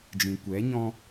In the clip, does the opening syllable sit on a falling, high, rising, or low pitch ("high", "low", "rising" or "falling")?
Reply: low